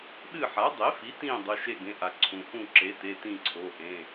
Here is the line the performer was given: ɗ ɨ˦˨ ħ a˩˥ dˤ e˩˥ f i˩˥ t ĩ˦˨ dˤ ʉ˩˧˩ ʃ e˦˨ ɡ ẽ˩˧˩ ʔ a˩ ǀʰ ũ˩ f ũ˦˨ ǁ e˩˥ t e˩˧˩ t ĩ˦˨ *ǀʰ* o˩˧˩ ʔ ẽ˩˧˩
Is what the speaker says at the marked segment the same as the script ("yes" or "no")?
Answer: yes